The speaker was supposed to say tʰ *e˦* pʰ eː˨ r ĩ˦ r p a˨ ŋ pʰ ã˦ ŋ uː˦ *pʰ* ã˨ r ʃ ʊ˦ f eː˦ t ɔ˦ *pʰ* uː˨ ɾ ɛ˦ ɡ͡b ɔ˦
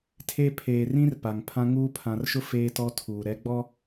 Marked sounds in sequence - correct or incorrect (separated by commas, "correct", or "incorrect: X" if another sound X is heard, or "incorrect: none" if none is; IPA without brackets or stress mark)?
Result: correct, correct, incorrect: tʰ